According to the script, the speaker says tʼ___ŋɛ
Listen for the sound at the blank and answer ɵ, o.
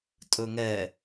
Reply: ɵ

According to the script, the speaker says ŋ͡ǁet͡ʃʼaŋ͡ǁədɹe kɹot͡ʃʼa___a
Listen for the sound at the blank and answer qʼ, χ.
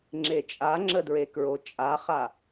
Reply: χ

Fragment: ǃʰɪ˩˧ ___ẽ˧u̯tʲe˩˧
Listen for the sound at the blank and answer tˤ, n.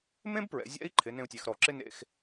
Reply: n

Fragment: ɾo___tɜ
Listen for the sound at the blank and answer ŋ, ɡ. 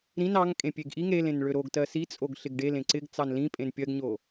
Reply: ɡ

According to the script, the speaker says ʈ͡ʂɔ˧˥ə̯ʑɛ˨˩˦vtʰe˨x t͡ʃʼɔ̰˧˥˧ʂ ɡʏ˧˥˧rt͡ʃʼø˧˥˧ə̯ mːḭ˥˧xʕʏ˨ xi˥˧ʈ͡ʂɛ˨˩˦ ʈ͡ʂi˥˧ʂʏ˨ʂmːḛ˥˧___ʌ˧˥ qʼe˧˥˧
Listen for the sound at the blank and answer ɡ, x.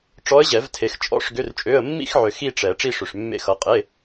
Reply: x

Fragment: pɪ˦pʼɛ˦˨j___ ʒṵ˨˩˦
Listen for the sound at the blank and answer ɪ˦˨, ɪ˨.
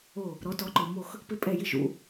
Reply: ɪ˦˨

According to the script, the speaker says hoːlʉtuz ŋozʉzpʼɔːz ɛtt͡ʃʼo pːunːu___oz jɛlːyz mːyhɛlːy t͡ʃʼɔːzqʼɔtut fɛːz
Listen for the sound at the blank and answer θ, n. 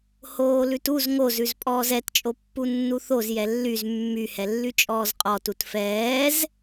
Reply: θ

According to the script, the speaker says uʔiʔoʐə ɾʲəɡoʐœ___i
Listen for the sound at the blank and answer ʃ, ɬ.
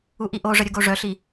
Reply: ɬ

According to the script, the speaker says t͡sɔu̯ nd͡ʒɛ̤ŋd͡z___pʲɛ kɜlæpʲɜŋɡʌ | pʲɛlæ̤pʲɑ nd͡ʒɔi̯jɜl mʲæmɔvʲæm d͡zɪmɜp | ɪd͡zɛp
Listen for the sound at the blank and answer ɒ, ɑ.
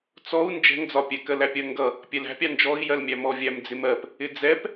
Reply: ɒ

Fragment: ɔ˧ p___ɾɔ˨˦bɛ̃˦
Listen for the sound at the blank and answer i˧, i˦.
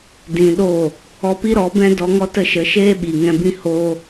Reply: i˦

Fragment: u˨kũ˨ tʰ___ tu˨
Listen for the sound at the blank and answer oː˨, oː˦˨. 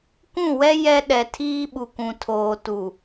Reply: oː˨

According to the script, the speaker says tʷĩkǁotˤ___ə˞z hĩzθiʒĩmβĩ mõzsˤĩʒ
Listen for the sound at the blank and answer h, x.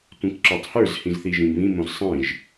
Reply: h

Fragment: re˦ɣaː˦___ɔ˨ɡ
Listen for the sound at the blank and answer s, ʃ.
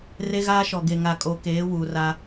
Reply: ʃ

